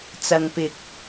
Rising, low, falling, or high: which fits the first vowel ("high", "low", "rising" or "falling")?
low